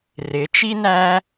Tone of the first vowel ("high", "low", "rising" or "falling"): rising